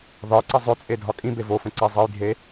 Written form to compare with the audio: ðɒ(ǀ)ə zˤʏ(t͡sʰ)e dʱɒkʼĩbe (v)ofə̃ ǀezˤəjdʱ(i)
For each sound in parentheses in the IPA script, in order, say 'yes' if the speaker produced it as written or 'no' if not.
yes, no, yes, no

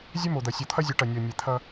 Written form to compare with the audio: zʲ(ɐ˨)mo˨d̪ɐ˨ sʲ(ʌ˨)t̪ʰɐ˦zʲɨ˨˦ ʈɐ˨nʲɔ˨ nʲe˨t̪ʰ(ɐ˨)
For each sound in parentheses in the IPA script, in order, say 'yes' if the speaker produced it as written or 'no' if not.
no, no, no

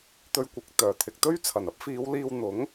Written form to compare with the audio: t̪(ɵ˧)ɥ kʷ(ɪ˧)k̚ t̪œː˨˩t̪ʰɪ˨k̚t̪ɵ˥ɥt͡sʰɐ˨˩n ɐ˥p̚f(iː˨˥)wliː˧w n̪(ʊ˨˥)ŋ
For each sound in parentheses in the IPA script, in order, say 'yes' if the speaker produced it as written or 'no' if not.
yes, no, no, yes

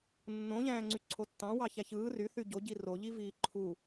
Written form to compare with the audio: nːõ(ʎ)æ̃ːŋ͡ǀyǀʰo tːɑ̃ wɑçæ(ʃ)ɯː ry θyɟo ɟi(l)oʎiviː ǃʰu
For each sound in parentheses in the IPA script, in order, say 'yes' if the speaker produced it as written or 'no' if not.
yes, no, no

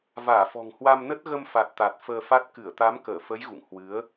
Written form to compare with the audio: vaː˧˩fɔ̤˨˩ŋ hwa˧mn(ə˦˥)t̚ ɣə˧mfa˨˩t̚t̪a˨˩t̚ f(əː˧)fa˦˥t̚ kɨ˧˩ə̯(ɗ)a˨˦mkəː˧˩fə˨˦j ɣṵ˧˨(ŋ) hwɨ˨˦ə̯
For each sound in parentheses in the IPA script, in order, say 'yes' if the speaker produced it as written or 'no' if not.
yes, yes, no, yes

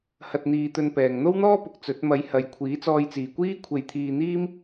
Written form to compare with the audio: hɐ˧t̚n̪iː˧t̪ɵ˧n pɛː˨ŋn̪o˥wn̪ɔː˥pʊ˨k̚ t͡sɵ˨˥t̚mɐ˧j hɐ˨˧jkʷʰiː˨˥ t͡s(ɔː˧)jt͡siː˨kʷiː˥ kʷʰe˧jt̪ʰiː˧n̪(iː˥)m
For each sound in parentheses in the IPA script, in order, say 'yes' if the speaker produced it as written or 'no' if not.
yes, yes

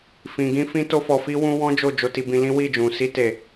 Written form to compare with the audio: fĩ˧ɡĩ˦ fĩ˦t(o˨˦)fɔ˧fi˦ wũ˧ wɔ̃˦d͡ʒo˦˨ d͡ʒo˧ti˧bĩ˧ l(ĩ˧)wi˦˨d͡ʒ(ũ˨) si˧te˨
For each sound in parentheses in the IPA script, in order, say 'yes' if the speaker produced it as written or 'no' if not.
no, no, yes

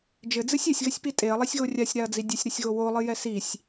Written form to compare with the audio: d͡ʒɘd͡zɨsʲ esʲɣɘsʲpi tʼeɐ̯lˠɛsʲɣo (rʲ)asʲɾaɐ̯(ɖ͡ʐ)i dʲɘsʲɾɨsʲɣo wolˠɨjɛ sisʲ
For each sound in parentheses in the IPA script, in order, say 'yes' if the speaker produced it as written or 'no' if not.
yes, no

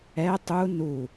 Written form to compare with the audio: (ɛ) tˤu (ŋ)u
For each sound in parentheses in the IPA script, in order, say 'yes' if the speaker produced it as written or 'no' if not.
yes, no

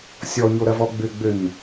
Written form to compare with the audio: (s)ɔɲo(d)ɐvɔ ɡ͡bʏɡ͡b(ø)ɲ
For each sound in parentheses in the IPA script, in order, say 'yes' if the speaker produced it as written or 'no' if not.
no, no, yes

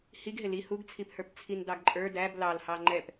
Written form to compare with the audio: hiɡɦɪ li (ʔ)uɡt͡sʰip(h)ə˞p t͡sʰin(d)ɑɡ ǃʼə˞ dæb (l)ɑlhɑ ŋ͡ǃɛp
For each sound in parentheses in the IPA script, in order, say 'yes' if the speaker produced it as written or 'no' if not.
no, yes, yes, yes

